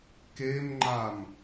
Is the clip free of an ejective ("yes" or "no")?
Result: yes